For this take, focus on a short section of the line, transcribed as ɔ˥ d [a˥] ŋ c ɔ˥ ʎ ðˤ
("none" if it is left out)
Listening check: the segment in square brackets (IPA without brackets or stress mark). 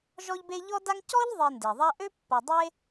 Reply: a˥